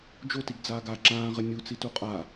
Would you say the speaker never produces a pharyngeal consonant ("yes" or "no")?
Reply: yes